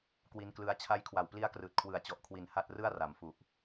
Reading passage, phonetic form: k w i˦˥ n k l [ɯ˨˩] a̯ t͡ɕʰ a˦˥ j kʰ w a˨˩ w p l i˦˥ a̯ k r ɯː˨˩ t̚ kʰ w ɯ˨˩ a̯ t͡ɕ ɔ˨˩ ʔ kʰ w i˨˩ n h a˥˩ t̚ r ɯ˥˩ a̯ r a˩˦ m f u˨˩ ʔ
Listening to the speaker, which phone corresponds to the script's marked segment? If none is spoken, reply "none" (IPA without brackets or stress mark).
ɯ˦˥